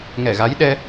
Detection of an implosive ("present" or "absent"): present